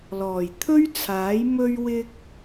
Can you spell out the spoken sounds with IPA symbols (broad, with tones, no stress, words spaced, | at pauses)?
lɔː˨˩jt̪ʰɵ˥ɥt͡sʰaː˨˥j mɵ˧ɥwɪ˧k̚